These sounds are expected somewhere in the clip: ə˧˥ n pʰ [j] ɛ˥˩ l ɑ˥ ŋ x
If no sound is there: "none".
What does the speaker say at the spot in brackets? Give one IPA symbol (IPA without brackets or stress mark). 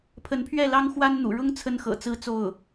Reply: ɥ